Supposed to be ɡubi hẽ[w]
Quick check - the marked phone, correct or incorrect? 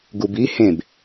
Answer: incorrect